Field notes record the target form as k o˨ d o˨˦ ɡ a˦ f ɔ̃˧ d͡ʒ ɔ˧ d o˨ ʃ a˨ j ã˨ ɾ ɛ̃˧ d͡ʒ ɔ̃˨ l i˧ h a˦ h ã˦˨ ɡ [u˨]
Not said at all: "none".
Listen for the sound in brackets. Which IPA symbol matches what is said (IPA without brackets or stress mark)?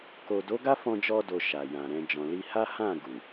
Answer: u˨